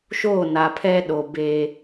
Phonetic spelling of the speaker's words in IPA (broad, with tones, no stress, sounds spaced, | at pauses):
ʃ oː˦˨ n a˨ pʰ ɛ˦ ɗ o˨ b e˦